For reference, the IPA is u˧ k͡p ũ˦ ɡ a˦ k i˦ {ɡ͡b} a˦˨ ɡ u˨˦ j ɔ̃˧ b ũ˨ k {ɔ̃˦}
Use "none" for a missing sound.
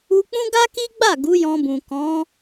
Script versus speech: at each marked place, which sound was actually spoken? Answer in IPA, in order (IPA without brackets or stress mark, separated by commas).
ɡ͡b, ɔ̃˨˦